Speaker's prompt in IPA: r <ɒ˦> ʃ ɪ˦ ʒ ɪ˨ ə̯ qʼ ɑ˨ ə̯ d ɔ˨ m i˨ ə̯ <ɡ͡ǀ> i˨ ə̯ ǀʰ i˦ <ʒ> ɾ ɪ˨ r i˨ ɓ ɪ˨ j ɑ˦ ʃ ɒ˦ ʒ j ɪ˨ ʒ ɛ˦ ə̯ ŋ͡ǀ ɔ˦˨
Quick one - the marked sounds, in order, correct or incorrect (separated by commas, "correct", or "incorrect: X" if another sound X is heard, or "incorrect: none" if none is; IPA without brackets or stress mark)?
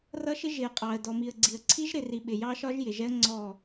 incorrect: ʌ˦, correct, correct